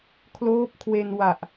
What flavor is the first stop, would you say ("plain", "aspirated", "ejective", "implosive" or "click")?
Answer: aspirated